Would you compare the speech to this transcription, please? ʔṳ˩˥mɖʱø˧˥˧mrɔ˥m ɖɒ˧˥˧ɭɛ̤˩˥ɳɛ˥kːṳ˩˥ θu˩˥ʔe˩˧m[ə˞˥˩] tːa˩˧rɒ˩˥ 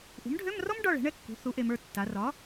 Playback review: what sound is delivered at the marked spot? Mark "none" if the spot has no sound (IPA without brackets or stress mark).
ə˞˥˩